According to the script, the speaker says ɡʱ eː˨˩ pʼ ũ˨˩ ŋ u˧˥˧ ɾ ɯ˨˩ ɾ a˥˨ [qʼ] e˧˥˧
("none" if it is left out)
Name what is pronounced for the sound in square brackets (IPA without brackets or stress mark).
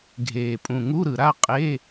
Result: qʼ